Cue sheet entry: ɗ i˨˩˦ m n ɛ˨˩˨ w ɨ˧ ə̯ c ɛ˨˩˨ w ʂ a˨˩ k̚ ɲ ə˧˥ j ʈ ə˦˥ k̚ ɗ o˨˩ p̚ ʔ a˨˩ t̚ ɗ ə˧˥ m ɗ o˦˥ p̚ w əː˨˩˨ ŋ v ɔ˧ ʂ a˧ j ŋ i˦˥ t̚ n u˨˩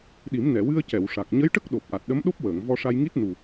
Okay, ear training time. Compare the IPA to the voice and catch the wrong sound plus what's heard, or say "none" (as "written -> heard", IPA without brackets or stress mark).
none